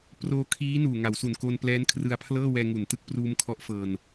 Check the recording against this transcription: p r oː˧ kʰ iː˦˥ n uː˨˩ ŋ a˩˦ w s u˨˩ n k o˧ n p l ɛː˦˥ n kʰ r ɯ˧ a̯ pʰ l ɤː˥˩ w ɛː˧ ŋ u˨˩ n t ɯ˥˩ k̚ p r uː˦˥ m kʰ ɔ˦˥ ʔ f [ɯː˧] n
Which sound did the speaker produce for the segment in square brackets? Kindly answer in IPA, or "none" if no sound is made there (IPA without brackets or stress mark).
ɤː˧